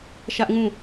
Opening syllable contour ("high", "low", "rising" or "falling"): high